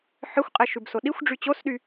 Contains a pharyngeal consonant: yes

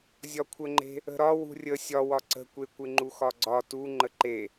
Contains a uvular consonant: no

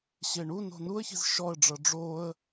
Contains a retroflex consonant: yes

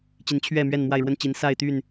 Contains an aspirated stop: yes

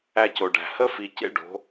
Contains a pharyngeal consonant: no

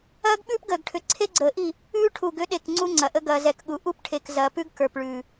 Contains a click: yes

